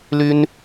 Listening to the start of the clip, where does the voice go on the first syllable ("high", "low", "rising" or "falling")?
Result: high